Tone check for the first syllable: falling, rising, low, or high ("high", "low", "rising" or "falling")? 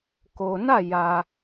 low